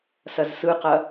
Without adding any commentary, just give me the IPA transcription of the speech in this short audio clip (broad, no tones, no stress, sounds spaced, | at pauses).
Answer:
s ɐ z s ɯ q ɐ